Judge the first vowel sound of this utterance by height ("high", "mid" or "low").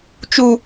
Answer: high